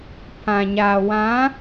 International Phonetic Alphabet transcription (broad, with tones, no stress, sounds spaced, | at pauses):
pʰ ã˨ ɲ aː˨ w ã˨˦